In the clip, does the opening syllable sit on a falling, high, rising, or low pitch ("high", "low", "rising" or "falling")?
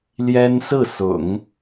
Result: high